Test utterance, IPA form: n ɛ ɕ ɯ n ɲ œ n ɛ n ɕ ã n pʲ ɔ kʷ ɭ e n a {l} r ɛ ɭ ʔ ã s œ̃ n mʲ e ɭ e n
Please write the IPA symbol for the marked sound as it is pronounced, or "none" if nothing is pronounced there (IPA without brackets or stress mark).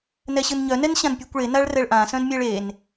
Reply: ɭ